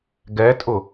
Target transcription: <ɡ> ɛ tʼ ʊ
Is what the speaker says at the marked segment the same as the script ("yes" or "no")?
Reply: yes